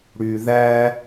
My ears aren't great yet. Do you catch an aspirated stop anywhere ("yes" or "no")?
no